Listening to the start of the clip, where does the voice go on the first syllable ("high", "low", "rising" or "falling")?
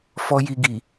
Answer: high